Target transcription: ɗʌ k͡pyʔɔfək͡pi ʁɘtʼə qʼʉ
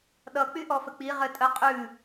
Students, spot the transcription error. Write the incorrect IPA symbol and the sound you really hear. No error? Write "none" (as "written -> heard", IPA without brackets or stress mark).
none